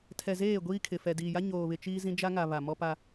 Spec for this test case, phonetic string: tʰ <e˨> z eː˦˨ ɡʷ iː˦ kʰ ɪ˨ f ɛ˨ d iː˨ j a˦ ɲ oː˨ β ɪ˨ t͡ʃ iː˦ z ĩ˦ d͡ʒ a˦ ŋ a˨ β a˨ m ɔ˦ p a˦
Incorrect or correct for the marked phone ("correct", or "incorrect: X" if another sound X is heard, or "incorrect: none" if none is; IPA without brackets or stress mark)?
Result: incorrect: ɛ˨